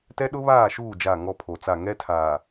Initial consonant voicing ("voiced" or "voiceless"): voiceless